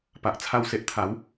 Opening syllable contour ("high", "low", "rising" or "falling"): low